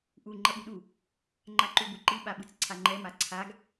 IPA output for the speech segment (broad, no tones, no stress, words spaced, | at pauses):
ʔu ŋ͡ǃʌɓuɗu | ŋ͡ǃaǃubuǃi ɓaɓɯt͡sǀʰaŋ͡ǃɛ maǀʰaɡ